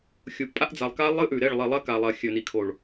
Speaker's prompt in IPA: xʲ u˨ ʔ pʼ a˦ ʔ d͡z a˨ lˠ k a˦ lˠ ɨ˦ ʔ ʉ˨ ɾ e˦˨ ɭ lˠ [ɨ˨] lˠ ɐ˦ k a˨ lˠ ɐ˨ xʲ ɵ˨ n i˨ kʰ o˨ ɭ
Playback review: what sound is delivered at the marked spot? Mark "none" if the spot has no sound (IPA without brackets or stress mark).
i˨